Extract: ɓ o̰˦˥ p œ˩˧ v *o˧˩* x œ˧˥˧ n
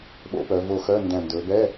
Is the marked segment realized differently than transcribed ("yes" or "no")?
no